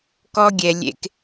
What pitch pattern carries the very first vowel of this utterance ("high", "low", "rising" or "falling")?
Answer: high